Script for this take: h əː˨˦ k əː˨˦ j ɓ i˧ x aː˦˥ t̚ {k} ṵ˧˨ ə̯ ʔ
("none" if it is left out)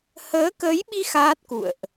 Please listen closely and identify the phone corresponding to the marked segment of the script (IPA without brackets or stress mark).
k